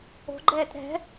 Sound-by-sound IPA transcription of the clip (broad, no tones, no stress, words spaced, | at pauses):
o̤ɡ͡ǃɛːt ɾɛ̤